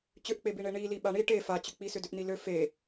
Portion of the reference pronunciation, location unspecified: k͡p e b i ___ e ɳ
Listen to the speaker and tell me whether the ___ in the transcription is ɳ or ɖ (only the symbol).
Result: ɳ